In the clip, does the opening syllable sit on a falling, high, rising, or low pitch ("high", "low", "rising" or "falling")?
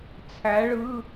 rising